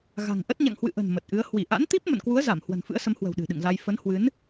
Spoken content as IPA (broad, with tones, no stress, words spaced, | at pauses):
ɣa̤˨˩ŋʔə˦˥t̚ ɲa̰˧˨ŋhwɨ̰˧˨ʔə̤˨˩n mə˨˩t̚ʔɨ˨˦ə̯ hwi˧˩ʔa̰˧˥nt̪i˦˥p̚ mə̰˧˨nkwu˨˦ə̯ za˧˩m hwə̤˨˩nfɨ̰˧˥ə̯sə˨˦mhwə̤˨˩w ɗɨ̤˨˩ɗɨ̰˧˨ŋza˧j fə˨˦nhwɨ˨˦n